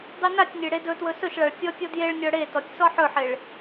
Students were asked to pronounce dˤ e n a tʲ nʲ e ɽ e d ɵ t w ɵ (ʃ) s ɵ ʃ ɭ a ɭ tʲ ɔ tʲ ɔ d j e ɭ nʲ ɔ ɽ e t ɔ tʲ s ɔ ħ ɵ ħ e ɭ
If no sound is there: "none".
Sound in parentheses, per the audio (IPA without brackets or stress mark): none